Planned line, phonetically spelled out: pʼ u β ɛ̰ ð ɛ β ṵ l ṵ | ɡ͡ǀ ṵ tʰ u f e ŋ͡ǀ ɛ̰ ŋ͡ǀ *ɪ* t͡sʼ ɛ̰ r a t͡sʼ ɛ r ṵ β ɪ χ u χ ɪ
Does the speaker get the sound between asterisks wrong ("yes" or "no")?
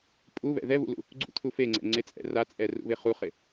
no